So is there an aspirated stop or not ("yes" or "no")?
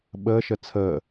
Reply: yes